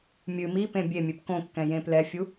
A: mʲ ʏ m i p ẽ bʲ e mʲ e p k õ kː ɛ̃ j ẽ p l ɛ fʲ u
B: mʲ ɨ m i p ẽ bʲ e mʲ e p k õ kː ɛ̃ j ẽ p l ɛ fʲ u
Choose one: B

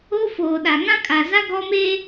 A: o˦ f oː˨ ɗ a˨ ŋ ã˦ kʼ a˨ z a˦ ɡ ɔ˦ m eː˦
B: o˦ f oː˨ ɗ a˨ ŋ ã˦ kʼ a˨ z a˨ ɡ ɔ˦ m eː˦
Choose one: A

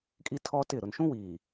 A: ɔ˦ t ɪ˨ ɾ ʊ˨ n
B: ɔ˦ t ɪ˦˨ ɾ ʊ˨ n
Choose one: B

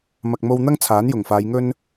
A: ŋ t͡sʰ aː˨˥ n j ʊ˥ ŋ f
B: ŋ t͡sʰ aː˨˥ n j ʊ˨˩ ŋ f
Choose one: B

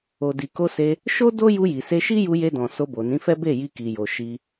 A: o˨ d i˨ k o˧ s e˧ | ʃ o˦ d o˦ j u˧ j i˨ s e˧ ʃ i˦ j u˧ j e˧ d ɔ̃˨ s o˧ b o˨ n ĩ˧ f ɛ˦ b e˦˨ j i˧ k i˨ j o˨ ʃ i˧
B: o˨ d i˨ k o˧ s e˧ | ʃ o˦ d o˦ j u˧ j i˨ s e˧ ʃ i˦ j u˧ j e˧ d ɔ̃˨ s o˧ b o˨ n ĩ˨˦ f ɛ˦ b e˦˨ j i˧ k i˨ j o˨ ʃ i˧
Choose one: B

